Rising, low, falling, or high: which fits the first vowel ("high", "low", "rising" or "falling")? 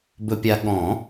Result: low